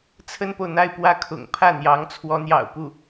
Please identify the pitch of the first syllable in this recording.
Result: high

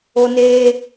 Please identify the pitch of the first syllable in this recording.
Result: high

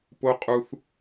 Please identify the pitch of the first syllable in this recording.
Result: high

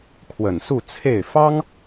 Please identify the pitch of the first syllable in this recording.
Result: low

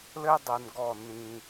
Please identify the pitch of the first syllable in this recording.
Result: high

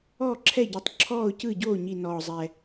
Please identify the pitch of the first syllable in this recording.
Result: falling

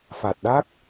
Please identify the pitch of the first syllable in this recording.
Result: low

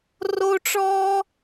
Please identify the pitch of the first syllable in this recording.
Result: high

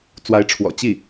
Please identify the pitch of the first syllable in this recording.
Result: rising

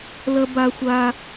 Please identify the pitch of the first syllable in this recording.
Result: high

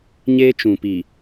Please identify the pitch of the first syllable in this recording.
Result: high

